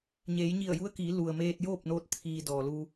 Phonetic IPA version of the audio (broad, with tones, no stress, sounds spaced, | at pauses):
ɲ eː˩˧ j ɲ i˧˩ ə̯ j u˧˥ ə̯ k iː˩˧ l u˩ ə̯ m eː˧ t̚ j oː˥˨ p̚ n oː˧ t̚ t̪ʰ iː˩ d ɔː˩ l u˧